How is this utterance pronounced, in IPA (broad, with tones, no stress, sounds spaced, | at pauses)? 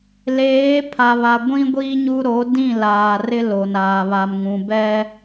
l eː˨˦ pʰ a˨ β a˨ ɡʷ ĩ˦ ɡʷ i˦ ɲ u˦ ɾ o˨˦ d ĩ˦˨ l aː˨ r ɪ˦ l o˨ n aː˨ β a˨ m ŋ ũ˨ b ɛ˦